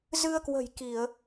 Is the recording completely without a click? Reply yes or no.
yes